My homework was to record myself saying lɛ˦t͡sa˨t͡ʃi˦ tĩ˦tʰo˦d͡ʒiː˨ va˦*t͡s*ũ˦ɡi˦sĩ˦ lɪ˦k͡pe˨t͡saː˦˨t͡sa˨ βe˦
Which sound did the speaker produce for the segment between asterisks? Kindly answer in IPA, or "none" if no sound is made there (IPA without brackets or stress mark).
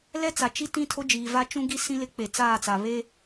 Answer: t͡ʃ